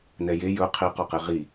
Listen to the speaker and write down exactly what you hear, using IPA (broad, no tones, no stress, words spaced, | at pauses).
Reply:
nɛje jɵ qʰi qɔqeʁi